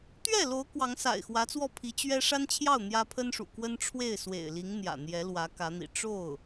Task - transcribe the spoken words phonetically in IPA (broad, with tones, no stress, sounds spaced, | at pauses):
t̪ ɥ ɛ˥˩ l o˧˥ ʊ̯ k w ɑ˧˥ ŋ s a̰˨˩ ɪ̯ x w ä˧˥ t͡s w ɔ˥˩ pʰ i˧˥ t͡ɕ ɥ ɛ˥ ʂ a˥ n t͡ɕʰ j ɑ˥˩ ʊ̯ n̪ j ä˥ pʰ ə˥ n ʂ ṵ˨˩ k w ə˥ n ʈ͡ʂʰ w e˥˩ ɪ̯ s w ḛ˨˩ ɪ̯ l i˧˥ ŋ n̪ j ä̰˨˩ n̪ j ɛ˧˥ l w ä˧˥ k ä˧˥ n̪ ḭ˨˩ ʈ͡ʂ o˥˩ ʊ̯